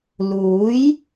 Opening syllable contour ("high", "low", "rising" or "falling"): rising